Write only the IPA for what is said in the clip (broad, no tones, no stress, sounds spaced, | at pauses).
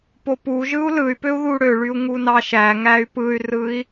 p o p u ʒ ɯ u̯ l ɯ y̯ p ø u̯ ð u ɽ ø ɭ y u̯ ŋ u n ɑ ʃ æ ŋ æ y̯ p ɯ y̯ r ɯ i̯